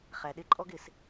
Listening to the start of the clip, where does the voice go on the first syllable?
low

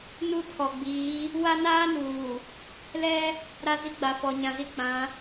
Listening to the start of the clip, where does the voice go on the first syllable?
falling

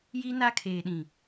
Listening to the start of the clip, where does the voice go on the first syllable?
high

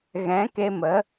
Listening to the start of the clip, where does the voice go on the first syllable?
rising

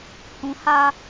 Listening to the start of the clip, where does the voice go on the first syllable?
low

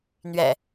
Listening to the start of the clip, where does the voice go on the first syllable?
low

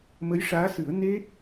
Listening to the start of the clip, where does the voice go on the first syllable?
rising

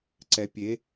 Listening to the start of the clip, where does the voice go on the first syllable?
rising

